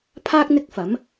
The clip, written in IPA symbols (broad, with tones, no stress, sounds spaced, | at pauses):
pʰ aː˥ k̚ n̪ ɪ˥ k̚ f ɐ˨˥ m